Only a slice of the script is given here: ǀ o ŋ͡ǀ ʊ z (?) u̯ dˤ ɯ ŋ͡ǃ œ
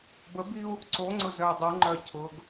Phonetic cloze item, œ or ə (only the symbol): œ